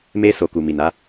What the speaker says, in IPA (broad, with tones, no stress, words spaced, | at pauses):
me˧ so˨ku˨mi˨na˨˦